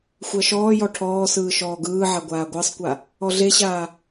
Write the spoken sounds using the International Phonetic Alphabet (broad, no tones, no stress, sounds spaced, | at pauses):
xʷ ɜ ʃ ɔː j ɔ ʈʰ ɔː s ɯː ʃ ɔː ɡ ɯː ʕ a ɡʷ aː ɡʷ ɜ sˤ kʷ a | ɔ ɮ e ɕ aː